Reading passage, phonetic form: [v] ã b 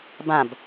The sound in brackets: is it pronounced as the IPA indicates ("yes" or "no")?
no